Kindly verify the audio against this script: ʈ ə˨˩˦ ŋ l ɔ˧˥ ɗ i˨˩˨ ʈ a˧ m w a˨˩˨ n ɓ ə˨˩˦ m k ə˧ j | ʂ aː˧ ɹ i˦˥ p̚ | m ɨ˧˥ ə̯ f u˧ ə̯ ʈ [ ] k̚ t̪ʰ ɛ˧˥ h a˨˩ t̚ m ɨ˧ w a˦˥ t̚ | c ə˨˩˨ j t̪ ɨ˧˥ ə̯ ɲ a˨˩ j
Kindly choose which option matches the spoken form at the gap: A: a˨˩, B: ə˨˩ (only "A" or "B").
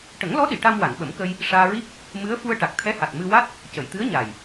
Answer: A